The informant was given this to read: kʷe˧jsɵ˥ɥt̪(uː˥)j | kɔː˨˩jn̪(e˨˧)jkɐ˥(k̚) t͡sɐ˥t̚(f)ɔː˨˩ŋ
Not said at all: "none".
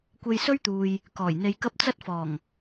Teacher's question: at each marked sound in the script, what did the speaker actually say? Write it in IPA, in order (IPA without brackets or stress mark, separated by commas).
uː˨, e˧, p̚, f